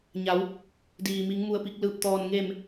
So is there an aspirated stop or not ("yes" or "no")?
no